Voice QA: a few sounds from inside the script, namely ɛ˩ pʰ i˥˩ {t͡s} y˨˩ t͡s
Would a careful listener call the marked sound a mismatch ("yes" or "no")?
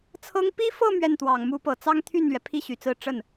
yes